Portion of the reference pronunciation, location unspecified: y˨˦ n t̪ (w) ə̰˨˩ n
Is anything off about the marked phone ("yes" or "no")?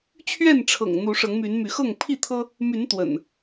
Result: no